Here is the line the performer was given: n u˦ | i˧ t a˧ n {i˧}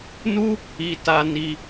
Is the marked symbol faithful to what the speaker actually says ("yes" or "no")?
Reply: yes